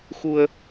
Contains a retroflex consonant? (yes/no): no